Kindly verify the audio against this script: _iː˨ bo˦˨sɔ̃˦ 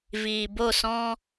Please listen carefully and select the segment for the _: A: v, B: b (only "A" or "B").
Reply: A